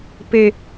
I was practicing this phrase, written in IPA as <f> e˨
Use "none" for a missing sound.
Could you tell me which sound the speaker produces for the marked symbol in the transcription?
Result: p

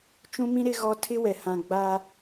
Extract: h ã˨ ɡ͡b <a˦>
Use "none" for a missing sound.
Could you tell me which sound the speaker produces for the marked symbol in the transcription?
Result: a˦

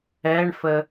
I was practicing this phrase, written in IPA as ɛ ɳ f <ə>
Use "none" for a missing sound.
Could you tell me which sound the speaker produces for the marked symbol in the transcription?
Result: ə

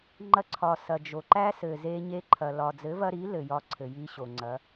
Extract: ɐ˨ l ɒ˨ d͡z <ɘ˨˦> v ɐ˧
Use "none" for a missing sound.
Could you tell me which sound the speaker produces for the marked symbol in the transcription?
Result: ɘ˨˦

